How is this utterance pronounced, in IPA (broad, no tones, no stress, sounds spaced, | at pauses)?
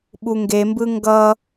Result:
ɓ u ŋ ɡ e m b ɯ ŋ ɡ ʌ